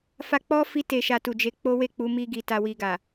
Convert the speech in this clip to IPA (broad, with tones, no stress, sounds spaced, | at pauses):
f a˧ k͡p ɔ˦ f i˧ t e˨ ʃ a˨ t u˨ d͡ʒ e˨˦ k͡p o˦ w e˦˨ k͡p u˨˦ m i˧ ɡ i˨ t a˨ w i˨ ɡ a˨